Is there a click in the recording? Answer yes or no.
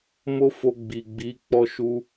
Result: no